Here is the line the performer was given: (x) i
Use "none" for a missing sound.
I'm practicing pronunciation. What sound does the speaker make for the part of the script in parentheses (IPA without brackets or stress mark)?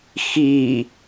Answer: x